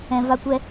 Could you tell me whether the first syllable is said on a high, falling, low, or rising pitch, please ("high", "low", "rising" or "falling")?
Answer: low